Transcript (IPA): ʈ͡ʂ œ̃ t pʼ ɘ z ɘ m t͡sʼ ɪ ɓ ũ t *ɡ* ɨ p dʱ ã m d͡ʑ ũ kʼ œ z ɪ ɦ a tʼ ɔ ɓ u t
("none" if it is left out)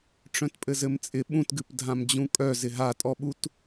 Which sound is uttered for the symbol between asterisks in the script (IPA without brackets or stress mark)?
ɡ